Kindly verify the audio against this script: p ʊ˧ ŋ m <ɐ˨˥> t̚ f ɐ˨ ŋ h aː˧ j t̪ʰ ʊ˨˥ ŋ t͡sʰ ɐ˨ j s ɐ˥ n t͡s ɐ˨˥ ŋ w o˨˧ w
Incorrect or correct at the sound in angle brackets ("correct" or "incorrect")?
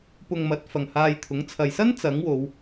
correct